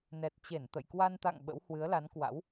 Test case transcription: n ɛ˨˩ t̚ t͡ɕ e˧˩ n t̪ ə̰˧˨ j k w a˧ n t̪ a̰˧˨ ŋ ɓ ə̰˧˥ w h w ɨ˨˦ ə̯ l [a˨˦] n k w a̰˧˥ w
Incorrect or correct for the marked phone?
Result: correct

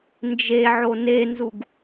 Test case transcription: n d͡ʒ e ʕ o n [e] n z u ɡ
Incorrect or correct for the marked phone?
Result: correct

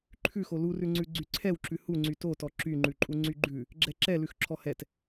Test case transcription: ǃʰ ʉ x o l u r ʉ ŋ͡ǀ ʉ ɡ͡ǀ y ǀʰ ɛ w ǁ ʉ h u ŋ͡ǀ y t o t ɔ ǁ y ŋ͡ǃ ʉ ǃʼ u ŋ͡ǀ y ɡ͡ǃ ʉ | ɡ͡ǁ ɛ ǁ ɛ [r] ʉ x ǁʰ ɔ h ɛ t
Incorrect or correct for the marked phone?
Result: incorrect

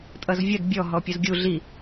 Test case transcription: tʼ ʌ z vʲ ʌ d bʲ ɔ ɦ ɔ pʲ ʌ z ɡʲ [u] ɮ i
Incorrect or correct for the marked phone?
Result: correct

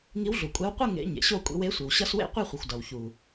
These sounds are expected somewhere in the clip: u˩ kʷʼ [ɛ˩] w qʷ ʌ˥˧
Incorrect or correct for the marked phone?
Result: incorrect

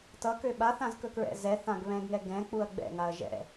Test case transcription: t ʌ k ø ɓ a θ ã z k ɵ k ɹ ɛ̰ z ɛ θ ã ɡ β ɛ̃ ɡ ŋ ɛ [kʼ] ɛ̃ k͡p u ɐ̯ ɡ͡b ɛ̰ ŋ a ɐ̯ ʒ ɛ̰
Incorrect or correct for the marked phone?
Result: incorrect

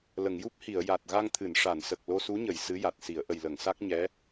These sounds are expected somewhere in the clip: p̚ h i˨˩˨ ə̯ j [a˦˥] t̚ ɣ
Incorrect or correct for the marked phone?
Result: incorrect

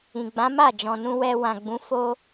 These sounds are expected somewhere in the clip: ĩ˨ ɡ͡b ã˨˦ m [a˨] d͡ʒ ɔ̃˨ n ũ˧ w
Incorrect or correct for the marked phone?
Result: incorrect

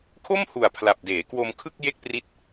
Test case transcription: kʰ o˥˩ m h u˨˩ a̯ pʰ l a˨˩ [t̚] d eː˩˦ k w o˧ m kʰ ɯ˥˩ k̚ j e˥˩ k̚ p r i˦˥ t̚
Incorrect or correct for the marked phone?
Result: incorrect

